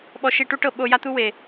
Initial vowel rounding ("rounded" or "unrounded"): rounded